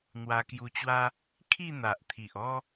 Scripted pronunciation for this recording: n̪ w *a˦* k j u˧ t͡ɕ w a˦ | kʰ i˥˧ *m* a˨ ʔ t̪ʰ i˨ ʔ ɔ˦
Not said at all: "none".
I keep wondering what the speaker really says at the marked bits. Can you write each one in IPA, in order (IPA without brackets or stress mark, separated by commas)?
a˧, n̪